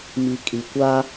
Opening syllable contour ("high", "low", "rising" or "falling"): low